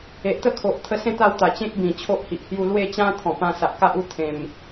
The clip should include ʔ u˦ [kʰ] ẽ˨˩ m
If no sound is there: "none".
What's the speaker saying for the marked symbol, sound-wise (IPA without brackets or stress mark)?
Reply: t̪ʰ